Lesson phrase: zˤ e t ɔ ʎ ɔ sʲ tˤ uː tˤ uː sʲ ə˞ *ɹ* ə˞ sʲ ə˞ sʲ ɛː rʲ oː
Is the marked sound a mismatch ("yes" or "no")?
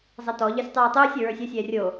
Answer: no